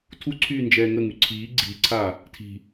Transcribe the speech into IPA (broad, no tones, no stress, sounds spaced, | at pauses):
tʰ u ǀʰ yː n d͡ʒ ɛː ŋ ə ŋ y ǀʰ iː ɡ͡ǀ iː ǀʰ aː | tʰ i̤